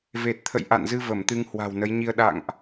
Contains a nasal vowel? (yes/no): no